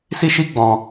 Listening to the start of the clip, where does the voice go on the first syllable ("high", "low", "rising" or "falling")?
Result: high